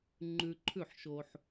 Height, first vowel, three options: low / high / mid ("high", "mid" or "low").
high